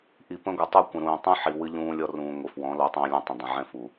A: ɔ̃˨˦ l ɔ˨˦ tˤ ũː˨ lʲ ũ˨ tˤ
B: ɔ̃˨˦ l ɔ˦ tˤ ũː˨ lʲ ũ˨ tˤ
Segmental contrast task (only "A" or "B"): A